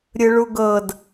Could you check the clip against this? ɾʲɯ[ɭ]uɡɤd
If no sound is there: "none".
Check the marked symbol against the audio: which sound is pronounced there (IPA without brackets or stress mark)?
ɭ